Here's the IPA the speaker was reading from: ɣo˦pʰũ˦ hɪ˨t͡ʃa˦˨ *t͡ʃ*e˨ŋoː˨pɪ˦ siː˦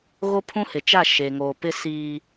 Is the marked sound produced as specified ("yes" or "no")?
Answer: no